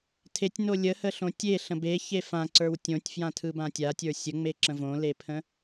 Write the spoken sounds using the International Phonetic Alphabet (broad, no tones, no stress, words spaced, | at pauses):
tʰetʲno lʲəhəɬõ tʲeɬə̃ beçe fãǀə˞w tʲõtʲfjãtʰɯbã tʲatʲə˞ sʲəŋ͡meǁə̃ võlepʰə̃